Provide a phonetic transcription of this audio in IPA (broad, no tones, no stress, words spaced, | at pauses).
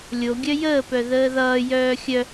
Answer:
lʲoɡʲœ jəːpœ ðəːðʌːjœː xʲœ